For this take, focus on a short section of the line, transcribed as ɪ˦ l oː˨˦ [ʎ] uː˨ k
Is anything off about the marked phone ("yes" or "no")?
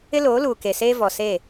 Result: yes